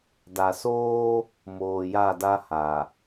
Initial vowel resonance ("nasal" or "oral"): oral